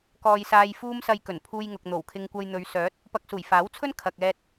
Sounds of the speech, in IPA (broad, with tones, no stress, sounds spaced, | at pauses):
k ɔː˧ j s aː˧ j f uː˥ m s ɐ˧ j k ɵ˨˩ n pʰ uː˧ j ŋ ʊ˨ k̚ n̪ o˨˩ w kʰ ɪ˧ ŋ kʷ ɐ˧ j n̪ ɵ˨˧ ɥ s œː˨˥ t̚ | p ɐ˧ k̚ s uː˨˩ j f aː˨˥ w t͡sʰ ɵ˥ n kʰ ɐ˨ k̚ ɛː˧ t̚